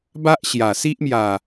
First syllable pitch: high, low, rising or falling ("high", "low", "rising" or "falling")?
high